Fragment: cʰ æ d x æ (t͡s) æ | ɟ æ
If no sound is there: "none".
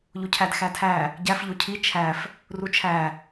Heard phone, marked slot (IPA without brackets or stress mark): tʰ